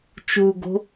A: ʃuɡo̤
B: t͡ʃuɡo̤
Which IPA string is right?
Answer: B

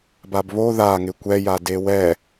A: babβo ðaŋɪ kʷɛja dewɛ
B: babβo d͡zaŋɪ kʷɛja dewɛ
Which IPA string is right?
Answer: A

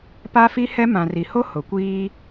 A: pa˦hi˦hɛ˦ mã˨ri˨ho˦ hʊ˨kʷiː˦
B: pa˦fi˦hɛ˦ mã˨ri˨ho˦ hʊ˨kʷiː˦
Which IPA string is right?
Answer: B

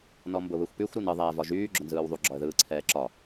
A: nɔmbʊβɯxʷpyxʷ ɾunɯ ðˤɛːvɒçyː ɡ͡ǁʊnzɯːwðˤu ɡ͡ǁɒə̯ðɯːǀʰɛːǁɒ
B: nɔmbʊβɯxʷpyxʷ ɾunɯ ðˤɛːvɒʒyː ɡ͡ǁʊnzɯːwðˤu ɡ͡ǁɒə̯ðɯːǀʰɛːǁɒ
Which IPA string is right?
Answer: B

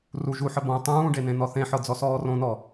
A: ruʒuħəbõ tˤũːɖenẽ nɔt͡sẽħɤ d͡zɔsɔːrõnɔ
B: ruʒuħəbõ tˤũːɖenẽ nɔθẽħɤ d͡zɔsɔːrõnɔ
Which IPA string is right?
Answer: B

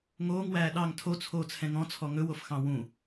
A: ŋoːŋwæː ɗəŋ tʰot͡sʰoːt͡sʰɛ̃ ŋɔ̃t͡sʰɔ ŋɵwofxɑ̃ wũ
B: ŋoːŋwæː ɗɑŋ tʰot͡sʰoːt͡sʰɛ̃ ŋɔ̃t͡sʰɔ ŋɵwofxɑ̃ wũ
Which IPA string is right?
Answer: B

